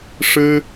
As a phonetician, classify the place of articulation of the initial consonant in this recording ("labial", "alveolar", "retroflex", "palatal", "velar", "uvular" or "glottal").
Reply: retroflex